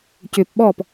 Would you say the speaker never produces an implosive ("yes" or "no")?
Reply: no